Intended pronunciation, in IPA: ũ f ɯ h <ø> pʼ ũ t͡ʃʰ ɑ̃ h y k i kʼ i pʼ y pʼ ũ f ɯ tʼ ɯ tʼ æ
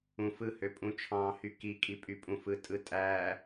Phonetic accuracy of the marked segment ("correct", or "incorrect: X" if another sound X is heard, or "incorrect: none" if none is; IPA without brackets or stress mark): correct